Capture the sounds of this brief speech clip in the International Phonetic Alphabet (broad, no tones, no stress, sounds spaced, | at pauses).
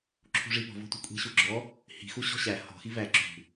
ǁʰ ṳ ʐ i p ɔ̤ v ɔ̤ tʷ i̤ kʷʼ i̤ ɕ u ɡ͡ǁ ɔ | h i̤ x u ɕ ɔ̤ ɕ æ h ɔ̤ x i v æ ǁ ṳ